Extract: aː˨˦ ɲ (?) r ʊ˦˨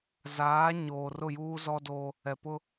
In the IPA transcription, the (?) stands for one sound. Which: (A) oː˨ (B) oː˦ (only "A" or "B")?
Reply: A